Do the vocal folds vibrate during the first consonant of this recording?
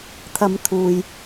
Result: no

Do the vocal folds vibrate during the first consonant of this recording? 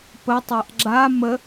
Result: no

